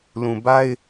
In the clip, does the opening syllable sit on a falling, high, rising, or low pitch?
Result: low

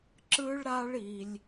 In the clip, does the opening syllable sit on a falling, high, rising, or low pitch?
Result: high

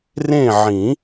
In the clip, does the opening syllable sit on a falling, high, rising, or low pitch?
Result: falling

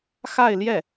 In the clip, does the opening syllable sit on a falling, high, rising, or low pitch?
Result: falling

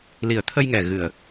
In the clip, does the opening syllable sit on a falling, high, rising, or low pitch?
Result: low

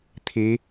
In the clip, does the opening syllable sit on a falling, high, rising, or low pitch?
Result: rising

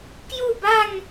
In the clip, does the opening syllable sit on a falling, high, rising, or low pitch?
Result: falling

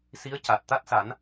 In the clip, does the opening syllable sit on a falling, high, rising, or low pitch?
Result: rising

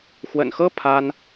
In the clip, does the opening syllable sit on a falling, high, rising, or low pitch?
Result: low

